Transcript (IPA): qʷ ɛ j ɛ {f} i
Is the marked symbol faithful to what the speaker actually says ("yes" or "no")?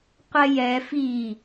yes